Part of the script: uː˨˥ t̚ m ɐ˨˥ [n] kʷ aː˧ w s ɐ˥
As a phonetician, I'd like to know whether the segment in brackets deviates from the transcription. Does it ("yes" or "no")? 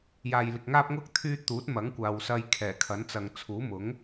yes